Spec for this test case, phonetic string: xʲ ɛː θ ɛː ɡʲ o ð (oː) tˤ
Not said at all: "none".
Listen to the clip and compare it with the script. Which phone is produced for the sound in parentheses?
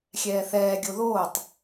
oː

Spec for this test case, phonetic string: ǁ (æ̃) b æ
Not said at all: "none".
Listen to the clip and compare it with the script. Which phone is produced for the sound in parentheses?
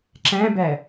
æ̃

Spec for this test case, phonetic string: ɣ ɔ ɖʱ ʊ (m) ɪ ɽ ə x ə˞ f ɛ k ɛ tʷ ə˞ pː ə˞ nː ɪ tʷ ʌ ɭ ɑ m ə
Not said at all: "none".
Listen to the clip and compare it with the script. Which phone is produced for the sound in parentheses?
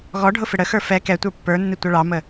f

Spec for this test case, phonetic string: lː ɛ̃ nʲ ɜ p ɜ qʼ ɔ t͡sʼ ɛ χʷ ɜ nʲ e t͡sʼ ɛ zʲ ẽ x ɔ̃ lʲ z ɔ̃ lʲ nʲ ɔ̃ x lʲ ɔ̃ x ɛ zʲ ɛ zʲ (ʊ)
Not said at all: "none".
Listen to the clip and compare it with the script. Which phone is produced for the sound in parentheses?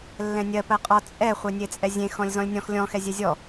ɔ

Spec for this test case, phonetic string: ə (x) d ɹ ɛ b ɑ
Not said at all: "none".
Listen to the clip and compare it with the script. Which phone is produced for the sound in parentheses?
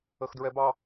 x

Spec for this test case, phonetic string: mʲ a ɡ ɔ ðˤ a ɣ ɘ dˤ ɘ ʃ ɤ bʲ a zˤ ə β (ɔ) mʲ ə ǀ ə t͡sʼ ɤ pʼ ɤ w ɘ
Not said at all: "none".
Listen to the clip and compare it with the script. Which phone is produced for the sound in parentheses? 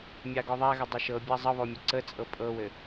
ɔ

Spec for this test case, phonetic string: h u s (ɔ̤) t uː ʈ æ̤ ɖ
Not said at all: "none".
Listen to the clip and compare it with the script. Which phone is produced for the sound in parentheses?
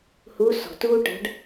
ɔ̤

